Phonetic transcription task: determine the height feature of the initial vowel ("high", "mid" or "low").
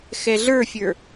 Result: mid